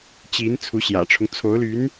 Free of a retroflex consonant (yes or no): no